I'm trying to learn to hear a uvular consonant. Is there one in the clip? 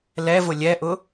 no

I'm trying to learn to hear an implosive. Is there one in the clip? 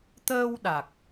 yes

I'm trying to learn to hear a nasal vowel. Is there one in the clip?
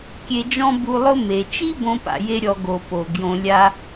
yes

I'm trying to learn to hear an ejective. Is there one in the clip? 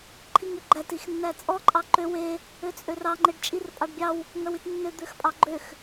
yes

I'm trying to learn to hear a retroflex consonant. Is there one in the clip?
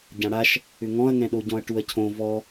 yes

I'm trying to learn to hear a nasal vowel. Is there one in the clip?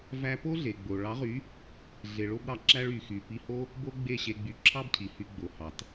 no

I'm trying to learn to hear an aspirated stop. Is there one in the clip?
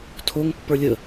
yes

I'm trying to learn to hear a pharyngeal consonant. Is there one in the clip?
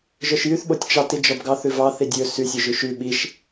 no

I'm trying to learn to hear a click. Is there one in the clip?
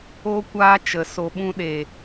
no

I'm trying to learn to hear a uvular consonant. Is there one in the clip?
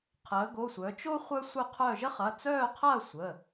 yes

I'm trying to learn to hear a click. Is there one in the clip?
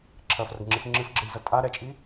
yes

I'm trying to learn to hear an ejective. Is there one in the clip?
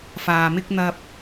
no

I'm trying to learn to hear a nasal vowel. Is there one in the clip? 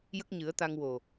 no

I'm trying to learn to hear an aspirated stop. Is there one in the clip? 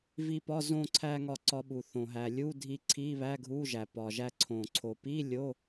yes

